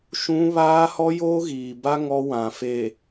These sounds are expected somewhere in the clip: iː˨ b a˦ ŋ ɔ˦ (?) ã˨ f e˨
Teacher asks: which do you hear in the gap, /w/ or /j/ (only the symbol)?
w